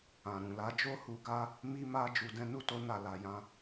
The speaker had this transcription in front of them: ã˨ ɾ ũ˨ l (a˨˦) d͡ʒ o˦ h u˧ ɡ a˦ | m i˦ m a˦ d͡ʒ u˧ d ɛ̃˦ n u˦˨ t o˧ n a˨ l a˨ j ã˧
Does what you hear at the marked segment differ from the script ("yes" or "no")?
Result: no